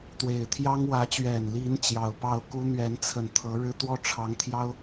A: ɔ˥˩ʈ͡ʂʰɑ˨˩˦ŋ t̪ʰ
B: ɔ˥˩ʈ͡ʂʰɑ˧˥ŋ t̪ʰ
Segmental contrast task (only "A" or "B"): B